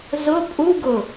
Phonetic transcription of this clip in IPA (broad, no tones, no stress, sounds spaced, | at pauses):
z ʊ pʼ u ɡ ʊ